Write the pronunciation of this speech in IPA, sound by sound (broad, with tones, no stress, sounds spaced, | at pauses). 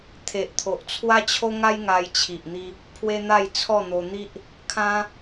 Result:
t̪ʰ e˨ ʔ t̪ʰ o˨ ʔ t͡sʰ w a˦ t͡ɕʰ o˦ ŋ a˦ j ŋ a˧ j t͡ɕʰ i˨ ʔ n̪ i˧ | pʰ w e˦ n̪ a˥˧ j t͡sʰ ɔ˥˧ n̪ o˧ n̪ i˦ ʔ | kʰ ã˦